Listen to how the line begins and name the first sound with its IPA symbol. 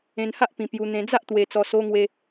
ẽ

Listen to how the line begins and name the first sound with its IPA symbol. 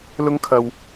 l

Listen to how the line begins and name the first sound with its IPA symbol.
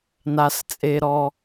n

